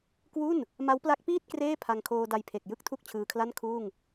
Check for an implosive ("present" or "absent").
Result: absent